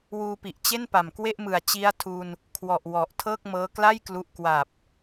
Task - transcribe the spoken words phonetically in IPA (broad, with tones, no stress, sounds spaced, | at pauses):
w uː˧ p i˨˩ ʔ t͡ɕ e˥˩ n p a˨˩ m k w e˥˩ ʔ m ɯ˨˩ a̯ t͡ɕ i˦˥ a̯ tʰ u˧ n | kʰ w ɔ˨˩ ʔ w ɔ˨˩ ʔ tʰ ɤː˥˩ k̚ m ɤː˦˥ k l a˥˩ j k l u˥˩ ʔ k w a˨˩ p̚